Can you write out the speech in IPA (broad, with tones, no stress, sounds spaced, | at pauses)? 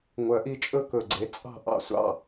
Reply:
ŋʷ œ˨˩˦ ʔ i˨˦ t͡ʃʼ ɵ˥˧ k ɵ˨˩ ɡ͡ǀ e˨˦ t͡sʼ ɑ̤˥˩ ʔ ɑ̰˥˩ sʷ ɑ̰˥˩